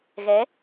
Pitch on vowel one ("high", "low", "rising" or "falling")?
rising